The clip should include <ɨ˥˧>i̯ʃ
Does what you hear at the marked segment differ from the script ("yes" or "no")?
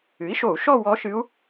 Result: yes